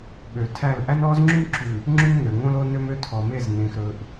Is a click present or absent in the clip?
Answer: present